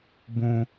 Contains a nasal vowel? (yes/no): yes